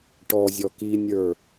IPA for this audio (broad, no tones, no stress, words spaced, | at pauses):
ʈɔ zʲɔkinʲə˞